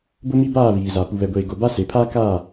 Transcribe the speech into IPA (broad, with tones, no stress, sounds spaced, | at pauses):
b ʊ˦ m i˦ b aː˦˨ β iː˨ z a˨ p u˨ β ɛ˨ ɡʷ eː˨ ɡ o˨ b a˦ s e˨ pʰ aː˦ k aː˦˨